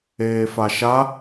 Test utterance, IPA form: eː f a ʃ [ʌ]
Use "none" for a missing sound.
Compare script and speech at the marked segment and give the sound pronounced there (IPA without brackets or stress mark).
a